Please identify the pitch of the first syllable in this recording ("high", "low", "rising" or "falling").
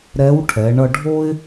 rising